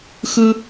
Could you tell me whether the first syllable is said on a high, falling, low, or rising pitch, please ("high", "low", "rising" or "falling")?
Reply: high